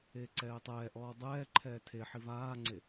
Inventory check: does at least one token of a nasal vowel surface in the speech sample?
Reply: no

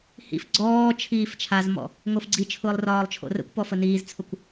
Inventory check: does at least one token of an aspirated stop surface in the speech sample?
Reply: yes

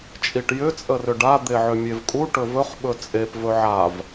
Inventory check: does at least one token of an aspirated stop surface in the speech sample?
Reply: no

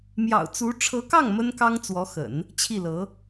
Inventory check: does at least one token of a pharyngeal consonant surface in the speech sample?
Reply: no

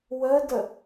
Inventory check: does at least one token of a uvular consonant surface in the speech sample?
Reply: no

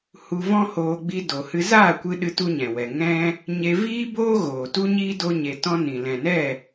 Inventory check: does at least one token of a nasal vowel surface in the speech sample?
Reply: yes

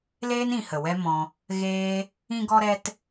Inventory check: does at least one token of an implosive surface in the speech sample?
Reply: no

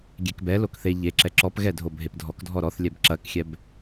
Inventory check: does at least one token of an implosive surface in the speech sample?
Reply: no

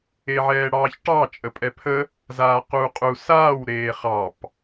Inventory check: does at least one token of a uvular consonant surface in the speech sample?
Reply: yes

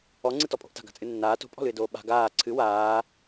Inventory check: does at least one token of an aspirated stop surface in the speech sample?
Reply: yes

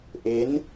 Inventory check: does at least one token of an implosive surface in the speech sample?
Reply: no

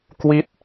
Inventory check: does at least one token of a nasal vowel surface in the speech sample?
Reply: no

